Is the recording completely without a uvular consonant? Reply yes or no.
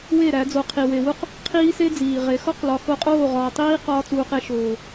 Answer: no